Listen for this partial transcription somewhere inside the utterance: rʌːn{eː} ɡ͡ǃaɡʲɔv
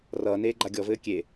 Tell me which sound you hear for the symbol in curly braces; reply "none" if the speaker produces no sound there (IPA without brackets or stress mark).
eː